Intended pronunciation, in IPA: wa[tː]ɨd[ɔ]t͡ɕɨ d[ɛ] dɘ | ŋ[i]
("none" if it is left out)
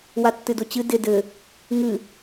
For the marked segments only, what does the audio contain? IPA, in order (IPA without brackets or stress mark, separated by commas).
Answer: tː, o, ɪ, ɨ